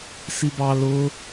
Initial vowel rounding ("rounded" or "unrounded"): unrounded